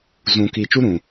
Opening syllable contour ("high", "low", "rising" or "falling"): low